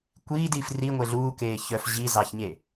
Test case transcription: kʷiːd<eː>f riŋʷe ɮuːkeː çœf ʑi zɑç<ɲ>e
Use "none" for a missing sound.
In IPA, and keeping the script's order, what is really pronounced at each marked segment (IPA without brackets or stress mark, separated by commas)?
iː, ɲ